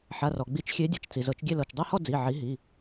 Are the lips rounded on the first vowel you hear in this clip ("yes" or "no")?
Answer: no